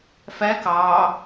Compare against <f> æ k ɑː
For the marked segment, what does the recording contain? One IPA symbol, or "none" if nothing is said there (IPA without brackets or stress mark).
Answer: f